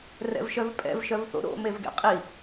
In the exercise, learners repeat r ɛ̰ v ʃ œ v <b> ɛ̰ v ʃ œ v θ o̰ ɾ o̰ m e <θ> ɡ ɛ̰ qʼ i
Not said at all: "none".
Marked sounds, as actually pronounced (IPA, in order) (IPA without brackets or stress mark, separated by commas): pʼ, v